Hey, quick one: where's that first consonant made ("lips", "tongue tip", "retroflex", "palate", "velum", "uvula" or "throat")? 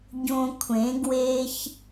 palate